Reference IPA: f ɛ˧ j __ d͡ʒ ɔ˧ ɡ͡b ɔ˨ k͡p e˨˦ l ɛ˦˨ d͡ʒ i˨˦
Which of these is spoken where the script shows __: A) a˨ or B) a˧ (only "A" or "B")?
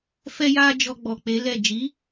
B